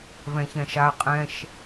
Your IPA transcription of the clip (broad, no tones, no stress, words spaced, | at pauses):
vɛ̃çɛ̃ʃa qʼɛ̃ʃ